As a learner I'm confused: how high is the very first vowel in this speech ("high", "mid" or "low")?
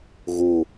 high